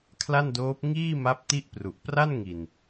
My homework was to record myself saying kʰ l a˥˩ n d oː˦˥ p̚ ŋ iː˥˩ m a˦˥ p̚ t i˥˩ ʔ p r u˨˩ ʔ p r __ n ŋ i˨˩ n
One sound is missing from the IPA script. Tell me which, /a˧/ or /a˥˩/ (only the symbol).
a˥˩